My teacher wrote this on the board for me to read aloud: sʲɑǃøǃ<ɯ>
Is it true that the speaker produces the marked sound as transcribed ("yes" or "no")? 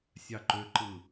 yes